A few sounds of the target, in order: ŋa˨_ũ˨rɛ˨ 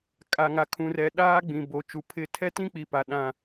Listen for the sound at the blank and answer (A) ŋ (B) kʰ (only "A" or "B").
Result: B